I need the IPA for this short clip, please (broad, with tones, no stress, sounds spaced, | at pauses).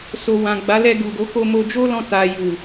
s o˨ w ã˨ ɡ͡b a˨˦ l ɛ˧ ɡ u˨ ɡ o˨˦ k o˧ m o˧ d͡ʒ o˦ l ɔ̃˧ t a˨ j u˨